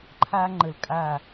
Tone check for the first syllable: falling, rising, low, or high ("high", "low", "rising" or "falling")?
high